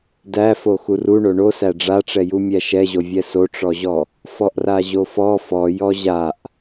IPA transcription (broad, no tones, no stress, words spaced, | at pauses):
dæfo xuruɳo ɳosæ ɖ͡ʐaʈ͡ʂɛju mʲæʃɛʑovʲɛ soʈ͡ʂɔʑɔ | fɔʔraʑofɔ fɔjɔ ʑaʔ